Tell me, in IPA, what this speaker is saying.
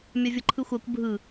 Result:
mʲavʲɤǃʰɯxʷakʷ bʱɯ

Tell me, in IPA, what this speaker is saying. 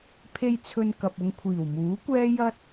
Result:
pʰe˧j t͡sʰɵ˧nkɐ˨p̚ʊ˧ŋ kʷʰiː˨˩wmuː˨˥kʷɛː˥ jɐ˥t̚

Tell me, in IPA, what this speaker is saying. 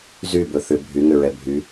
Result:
zy bɵθʏ bʱyŋʏ ɹɛbʱy

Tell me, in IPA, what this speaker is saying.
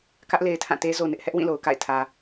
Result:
kä˦ʔ le˨ɪ̯tʰã˦˨te˦ zo˨nɪ˦ʔhɛ˦ʔ wĩ˦˨lo˨ʊ̯ka̰˦˨ɪ̯ tʰä˨

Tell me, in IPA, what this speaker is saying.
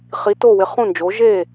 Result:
χi˧˥ to˥˧wɪ˧˥ χũ˥˧nd͡ʒo˧˥ ʒe˥˧

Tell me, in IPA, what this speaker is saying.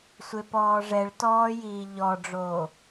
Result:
sʷepɔːʐɛɭtɔː jiːʎɔɖ͡ʐoː

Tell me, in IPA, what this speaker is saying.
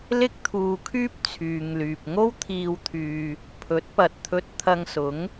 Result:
lɪ˥k̚t̪ʰuː˧kʰyː˥p̚ t͡sʰyː˨ŋlyː˨p̚ŋo˥wt̪ʰiː˧w t̪ʰyː˧ | pʰɵ˨˥t̚pɐ˨t̚t̪ʰɵ˧t̚ t̪ʰɐ˧ŋsʊ˨˥ŋ

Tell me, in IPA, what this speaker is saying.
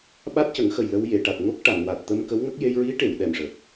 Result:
ɓa˦˥t̚cə˨˩˦ŋxə˨˩j lə˧wje˨˩˨ʈa˨˩t̚ ŋo˦˥k̚ʈa˨˩˨nwa˨˩t̚ t̪ə˧mkə˧˥wŋə˦˥k̚ je˧jɹi˧˥ʈe˨˩˨w ɗɛ˨˩mʂə˨˩k̚

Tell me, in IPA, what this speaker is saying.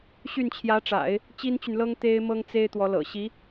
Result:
ɕy˥˩nt͡ɕʰjä˧˥ʈ͡ʂa̰˨˩˦ɪ̯ | t͡ɕi˥nt͡ɕy˨nlɤ˥ŋ t̪e˥ɪ̯mɤ˥ŋt͡se˥ɪ̯ t̪wɔ˧˥lɤ̰˨˩ ɕi˧˥

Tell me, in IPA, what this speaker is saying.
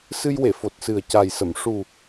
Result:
sɨ˧jwe˨˩˨ fo˨˩t̚sɨ˨˩ə̯ ca˨˩jsə˨˩˨m ʂu˨˩

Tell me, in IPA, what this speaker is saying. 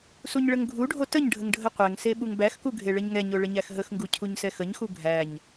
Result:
suɲɭəŋɡʱuɖʱo təɲɖʱəŋ ɖʱəqʷɛŋse ɓuŋbæxku ɡʱeɭəɲŋɛɲo ɭəɲæxɦəxŋɡu cʰuɲsɛxəɲxu ɡʱæɲ

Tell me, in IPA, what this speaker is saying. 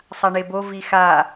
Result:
sˤaɳebo vixa

